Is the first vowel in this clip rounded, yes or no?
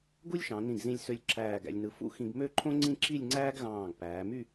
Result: yes